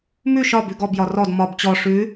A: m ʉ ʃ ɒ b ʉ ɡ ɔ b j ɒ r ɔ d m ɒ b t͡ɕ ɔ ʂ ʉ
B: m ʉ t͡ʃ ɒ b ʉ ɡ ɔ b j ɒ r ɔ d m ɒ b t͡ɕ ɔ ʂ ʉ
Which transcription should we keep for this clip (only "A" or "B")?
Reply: A